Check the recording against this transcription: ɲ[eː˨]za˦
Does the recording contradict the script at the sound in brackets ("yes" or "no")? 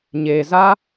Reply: no